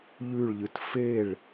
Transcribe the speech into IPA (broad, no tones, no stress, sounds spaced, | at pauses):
ʎ ʉ ɭ ʎ ɨ t f e ɭ